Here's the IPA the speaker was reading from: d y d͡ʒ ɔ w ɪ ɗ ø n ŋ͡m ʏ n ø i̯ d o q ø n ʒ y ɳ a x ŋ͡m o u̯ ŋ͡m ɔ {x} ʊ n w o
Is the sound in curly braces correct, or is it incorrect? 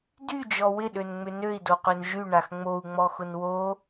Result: correct